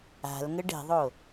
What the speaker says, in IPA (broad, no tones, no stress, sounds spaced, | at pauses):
a̤ l ŋ ə ɖ ɛ̤ ðˤ o